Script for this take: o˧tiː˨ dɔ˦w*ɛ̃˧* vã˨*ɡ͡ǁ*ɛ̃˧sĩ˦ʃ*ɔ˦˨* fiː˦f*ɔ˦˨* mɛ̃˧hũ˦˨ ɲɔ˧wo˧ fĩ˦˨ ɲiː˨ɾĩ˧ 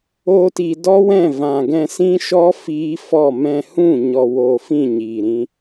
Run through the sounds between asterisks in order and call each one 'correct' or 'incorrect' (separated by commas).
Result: incorrect, incorrect, incorrect, correct